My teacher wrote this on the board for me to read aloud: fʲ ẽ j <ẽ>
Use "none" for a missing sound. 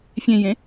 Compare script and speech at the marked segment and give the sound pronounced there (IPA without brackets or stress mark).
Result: ẽ